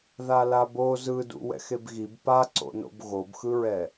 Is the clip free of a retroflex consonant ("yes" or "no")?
yes